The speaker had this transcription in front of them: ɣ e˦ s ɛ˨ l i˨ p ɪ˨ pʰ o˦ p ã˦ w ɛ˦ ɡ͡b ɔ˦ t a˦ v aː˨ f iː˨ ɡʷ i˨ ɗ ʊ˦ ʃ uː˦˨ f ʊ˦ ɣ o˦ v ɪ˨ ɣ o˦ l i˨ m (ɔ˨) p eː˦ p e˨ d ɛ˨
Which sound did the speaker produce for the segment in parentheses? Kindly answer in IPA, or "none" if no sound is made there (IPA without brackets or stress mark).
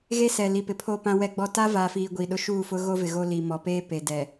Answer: ɔ˨